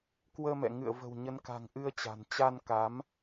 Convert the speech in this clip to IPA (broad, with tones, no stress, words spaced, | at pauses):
kwəː˧mɛ̰˧˨ ŋɨ̰˧˨ə̯və̤˨˩wɲə˨˦nka̤˨˩ŋ ʔɨ˧ə̯t͡ɕa̤˨˩n t͡ɕa˧nka˨˦m